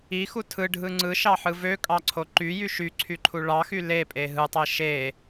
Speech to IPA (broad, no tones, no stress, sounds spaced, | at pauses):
i x u tʰ ɯ ɖʱ ɯ ŋ͡ǀ ɯ ʃ ɑ ħ ɯ v ø kʼ ɑ ǀʰ o ǃ y j y ʃ y ǀʰ y ǃʰ u ɭ ɑ x y l e pʼ e ɦ ɯ tˤ e ʃ e